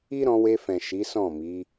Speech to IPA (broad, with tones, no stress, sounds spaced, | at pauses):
i˦ ɾ ɔ̃˧ w e˧ f ɛ̃˨ ʃ i˨˦ s ɔ̃˦˨ m i˨˦